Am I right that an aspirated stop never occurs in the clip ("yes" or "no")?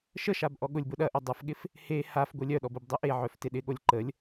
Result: yes